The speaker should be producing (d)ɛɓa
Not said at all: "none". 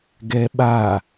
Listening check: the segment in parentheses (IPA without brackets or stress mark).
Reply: ɡ